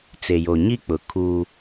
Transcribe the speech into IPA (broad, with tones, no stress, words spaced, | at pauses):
t͡se˨jo˨ ɲi˦k͡pʊ˨ kʰu˦